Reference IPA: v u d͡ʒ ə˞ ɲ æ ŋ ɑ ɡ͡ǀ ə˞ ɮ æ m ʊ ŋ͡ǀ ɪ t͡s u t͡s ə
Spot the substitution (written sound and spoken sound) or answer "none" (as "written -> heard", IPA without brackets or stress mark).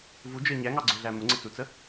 none